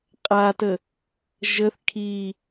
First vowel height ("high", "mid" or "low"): low